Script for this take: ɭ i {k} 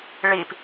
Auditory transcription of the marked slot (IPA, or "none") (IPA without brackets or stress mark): p